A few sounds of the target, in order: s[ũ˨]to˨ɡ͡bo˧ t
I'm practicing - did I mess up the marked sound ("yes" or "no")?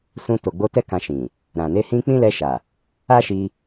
yes